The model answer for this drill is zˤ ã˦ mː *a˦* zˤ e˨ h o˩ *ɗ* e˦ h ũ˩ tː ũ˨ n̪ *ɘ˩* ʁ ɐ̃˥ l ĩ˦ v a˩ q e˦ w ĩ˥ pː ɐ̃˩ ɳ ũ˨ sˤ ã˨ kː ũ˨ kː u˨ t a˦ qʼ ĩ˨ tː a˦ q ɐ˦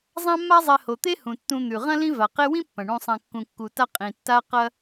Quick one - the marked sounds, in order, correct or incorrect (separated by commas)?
correct, incorrect, incorrect